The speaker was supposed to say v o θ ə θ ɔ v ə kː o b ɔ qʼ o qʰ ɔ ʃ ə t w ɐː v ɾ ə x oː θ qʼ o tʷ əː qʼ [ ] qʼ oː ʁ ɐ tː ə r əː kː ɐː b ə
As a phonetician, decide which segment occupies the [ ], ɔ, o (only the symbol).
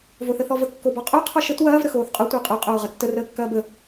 o